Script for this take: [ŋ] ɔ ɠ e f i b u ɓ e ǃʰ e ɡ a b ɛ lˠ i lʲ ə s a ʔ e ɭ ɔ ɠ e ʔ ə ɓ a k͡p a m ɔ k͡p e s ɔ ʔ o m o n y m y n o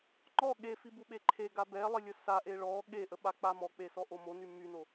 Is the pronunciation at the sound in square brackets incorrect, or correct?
incorrect